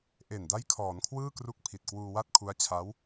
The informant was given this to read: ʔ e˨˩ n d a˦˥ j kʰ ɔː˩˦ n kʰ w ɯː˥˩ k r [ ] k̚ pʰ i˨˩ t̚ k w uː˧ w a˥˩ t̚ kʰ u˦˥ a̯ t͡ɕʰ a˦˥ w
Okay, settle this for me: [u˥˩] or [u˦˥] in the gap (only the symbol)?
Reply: u˦˥